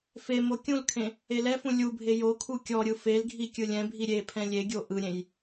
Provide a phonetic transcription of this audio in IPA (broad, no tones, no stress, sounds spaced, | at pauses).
f e m o kʲ ũ l kʰ ẽ | e l ɛ f ũ lʲ u bʱ e j o kʰ u kʲ ɔ ɾʲ ɯ f e l ɡʱ i kʲ ɯ lʲ ɛ̃ bʱ i ɾʲ e pʰ ɛ̃ lʲ e ɡʲ o ʔ ɯ ɾʲ ẽ j